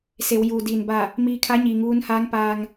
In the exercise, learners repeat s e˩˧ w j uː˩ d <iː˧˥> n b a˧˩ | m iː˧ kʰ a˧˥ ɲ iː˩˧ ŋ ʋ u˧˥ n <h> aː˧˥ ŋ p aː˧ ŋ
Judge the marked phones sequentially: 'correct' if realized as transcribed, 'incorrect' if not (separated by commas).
incorrect, correct